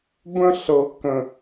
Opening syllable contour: high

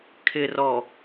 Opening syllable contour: low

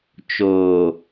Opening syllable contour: low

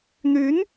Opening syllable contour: rising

